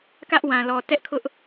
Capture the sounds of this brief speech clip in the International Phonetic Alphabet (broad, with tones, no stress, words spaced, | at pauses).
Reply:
kä˦ʔwã˨lɔ˨ tɛ˦ʔkʰʊ˦ʔ